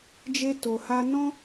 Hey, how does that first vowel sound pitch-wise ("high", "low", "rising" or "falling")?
high